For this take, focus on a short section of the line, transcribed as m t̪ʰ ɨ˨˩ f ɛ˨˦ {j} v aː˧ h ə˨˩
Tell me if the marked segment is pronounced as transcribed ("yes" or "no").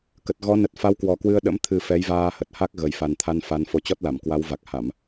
yes